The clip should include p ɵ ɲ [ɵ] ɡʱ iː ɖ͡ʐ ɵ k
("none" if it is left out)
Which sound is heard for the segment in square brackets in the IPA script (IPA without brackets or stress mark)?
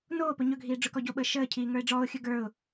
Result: ɵ